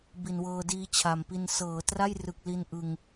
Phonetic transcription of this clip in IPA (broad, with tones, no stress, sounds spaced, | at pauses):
b i˨˩ n w ɤː˧ d iː˦˥ t͡ɕʰ a˨˩ m p i˧ n s ɤː˩˦ t r a˥˩ j r ɯ˨˩ k̚ l i˧ n ʔ ɯ˧ ŋ